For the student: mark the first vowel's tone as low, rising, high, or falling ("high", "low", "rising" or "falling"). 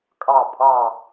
falling